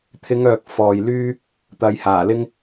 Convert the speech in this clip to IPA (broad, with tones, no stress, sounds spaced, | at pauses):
t̪ʰ ɪ˨˧ ŋ œː˨ k̚ f ɔː˨ j l yː˥ | t̪ ɐ˨˧ j h aː˨˩ l ɪ˥ ŋ